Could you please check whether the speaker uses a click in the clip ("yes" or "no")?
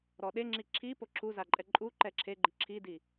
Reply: yes